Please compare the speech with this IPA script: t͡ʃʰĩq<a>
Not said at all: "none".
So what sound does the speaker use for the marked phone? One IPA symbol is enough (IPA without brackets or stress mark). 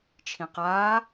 aː